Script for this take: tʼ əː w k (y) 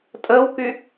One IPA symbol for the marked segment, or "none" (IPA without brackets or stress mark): y